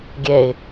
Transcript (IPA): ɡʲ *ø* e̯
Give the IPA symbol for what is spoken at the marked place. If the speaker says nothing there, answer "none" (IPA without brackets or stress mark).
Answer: ɛ